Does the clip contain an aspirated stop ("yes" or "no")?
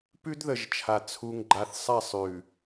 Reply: yes